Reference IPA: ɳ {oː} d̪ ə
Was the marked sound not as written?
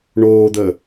no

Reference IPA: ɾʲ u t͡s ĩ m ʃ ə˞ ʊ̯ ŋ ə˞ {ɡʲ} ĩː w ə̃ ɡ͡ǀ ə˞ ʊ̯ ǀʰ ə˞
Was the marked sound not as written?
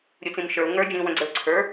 yes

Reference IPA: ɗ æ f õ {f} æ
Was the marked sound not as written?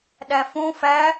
no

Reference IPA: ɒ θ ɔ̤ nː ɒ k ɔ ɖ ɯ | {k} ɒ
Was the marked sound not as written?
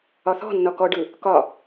no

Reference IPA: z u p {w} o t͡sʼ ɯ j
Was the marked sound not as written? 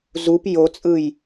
yes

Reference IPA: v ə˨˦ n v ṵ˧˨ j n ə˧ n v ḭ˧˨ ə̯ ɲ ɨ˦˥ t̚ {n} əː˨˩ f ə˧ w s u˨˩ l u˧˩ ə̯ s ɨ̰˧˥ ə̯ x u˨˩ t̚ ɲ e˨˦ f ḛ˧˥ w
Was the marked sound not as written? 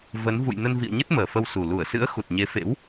yes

